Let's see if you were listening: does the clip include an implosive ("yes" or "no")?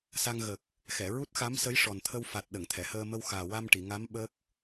yes